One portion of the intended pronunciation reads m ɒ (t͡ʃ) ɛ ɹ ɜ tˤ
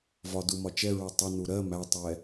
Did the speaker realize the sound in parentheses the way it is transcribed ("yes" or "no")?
yes